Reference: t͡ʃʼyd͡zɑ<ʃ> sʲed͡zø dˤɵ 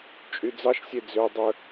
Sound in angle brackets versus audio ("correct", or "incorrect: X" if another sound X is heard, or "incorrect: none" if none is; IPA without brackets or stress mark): correct